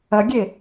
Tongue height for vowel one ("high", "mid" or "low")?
low